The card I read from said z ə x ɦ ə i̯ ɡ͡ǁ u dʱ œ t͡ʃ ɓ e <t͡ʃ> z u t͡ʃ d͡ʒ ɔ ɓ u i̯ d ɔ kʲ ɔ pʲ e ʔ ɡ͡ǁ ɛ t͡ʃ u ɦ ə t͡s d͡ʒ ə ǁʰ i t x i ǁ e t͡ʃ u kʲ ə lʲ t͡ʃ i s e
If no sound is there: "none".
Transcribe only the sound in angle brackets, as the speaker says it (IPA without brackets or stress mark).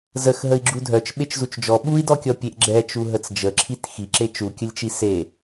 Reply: t͡ʃ